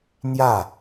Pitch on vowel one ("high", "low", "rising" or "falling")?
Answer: falling